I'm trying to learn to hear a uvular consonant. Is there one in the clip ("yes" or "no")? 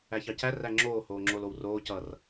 no